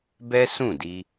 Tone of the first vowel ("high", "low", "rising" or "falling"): high